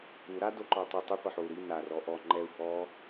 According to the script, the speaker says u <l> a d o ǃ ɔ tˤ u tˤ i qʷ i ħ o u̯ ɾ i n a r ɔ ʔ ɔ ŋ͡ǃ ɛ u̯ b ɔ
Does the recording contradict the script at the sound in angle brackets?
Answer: yes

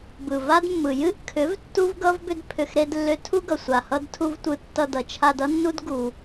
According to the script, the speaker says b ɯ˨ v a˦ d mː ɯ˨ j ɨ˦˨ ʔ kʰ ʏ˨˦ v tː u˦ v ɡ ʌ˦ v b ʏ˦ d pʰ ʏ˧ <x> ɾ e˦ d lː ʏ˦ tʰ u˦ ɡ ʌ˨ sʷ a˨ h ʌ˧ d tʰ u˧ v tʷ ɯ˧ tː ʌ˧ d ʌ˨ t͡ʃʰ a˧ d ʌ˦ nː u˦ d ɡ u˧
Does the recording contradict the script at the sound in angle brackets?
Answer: no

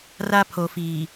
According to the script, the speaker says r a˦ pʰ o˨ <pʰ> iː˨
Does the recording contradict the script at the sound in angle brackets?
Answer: yes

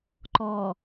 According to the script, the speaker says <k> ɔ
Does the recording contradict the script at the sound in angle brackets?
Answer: yes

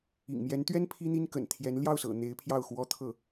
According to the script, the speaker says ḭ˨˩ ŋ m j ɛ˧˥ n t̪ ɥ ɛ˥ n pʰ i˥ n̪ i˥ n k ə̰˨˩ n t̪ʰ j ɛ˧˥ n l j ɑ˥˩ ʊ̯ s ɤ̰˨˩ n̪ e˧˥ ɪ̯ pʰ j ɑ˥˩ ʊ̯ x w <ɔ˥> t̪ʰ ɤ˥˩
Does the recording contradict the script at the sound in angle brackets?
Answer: no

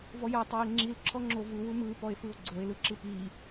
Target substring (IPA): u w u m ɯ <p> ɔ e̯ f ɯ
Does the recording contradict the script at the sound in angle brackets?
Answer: no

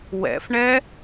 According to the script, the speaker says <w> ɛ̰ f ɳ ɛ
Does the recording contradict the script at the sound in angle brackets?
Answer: no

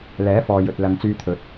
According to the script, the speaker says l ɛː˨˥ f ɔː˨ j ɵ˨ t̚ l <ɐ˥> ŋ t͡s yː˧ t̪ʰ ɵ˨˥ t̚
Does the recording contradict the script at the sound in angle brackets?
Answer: yes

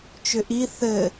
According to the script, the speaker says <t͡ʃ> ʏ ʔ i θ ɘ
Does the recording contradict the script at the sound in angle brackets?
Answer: no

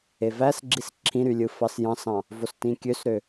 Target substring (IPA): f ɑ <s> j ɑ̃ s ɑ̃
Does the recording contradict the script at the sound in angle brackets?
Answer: no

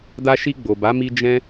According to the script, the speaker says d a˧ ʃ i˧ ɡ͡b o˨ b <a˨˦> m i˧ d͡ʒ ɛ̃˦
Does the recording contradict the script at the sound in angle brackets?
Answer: no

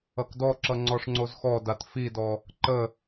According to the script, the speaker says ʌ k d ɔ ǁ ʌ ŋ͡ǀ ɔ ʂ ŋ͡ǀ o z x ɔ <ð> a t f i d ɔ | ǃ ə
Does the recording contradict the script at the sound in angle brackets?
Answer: yes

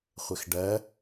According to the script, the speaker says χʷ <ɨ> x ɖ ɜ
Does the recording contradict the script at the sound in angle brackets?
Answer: yes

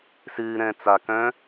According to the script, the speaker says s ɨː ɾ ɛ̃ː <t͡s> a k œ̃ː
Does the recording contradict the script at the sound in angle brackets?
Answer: no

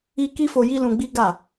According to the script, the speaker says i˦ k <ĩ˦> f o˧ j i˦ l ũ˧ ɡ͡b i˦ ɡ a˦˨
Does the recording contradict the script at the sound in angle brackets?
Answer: yes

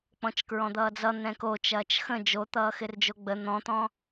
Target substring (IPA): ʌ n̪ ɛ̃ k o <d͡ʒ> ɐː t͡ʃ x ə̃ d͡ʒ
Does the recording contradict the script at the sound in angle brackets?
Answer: yes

